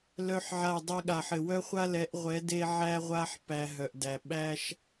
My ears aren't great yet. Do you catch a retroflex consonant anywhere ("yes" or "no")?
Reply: no